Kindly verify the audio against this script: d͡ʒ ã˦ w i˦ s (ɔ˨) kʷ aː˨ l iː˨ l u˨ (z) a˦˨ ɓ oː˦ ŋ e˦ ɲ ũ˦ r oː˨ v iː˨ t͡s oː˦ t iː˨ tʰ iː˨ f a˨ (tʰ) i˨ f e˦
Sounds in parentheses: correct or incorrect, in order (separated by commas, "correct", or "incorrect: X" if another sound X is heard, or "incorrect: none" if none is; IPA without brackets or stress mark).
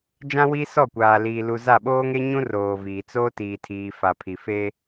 incorrect: ɔ˦˨, correct, incorrect: pʰ